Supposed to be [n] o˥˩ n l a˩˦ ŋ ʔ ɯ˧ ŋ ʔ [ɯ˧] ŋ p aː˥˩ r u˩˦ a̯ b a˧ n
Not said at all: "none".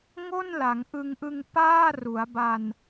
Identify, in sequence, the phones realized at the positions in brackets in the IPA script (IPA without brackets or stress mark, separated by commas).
ŋ, ɯ˧